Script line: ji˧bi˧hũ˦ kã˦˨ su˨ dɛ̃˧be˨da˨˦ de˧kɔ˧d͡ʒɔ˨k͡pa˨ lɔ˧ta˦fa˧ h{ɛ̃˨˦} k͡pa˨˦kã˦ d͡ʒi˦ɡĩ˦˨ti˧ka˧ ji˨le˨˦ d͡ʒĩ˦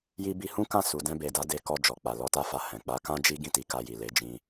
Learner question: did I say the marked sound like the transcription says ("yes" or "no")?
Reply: no